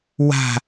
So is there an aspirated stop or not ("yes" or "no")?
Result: no